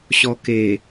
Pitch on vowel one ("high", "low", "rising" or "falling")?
low